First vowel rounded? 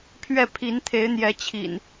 no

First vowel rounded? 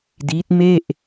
no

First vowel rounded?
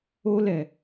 yes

